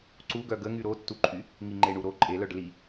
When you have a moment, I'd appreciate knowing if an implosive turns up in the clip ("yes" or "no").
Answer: no